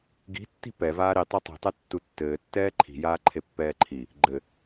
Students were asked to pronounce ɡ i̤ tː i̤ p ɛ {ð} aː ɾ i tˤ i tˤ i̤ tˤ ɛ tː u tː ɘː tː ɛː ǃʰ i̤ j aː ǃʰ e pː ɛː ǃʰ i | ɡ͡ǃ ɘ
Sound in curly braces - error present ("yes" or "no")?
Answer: yes